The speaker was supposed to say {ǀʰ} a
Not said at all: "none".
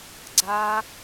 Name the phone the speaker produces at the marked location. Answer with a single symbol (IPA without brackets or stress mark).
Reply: ɡ͡ǀ